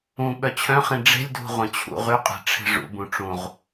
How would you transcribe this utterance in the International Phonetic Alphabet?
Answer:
ũ ɓœt͡ɕʰœ̃χĩ ɖ͡ʐe̤lʲdʱṳ ʁʷœ̃t͡ɕʰṵ ʁyqʼɛ̤ ʈ͡ʂʰe̤ʐṵ bũʈ͡ʂũʁ

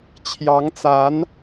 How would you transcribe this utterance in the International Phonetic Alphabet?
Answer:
t͡ɕʰjɑ˧˥ŋt͡sa˧˥n

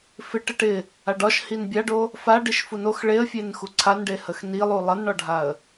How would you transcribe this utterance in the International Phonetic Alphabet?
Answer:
fɪʈə ʈɪ | aɖɒʃ hinbʲaɖo | fa ɖiʃfunox ɭeə̯fʲen xuǀʰanɖe həxnilˠu lˠʌnɳɒɖʱaə̯

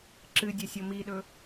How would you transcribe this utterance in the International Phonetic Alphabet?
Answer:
ǁɨdʲɐ sʲomiɗɵ

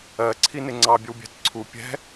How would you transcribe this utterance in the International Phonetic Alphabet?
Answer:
ɜǀʰi nɪŋ͡ǀɑbʲəw bʲæ̤tǀʰu pʲɛ̤

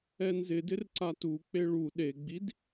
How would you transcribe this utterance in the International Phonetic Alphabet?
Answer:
ɛnzɪdɪr ǀatuk͡pe ɭu ɗeɡ͡bid

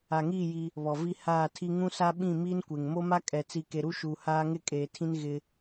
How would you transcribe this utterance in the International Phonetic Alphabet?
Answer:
a˨ŋiː˦˨ ji˦ | βɔ˨vi˦ haː˦˨tʰi˦ ŋũ˦sa˦ ɓĩ˦˨miː˦nkʷe˨ŋ mo˦ma˦kʼɛ˨t͡si˨ ke˨ɾu˦ʃuː˨ haː˦ ŋɪ˦kʼeː˨tʰĩ˦n ɣɪ˦

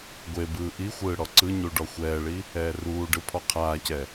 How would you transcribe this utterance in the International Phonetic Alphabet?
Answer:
ɡʷebɯː ʔixʷɯː ɽɔǀɯɲu ɖɔxʷɛːɭi | ɛːruːɖɯ pʰɔqʰaːcɛ

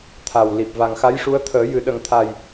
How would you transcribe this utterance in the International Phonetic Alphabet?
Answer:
t̪ʰa˨˩wli˨˩p̚ va˨˩ŋxa˧˥jʂu˧˥ə̯ t̪ʰəː˨˩˦jɨ˨˩˦ ɗə˧ŋ t̪ʰa˨˩j

